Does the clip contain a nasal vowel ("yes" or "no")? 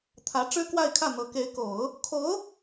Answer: no